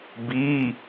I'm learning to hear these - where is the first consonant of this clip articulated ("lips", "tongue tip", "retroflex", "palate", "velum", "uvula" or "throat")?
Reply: lips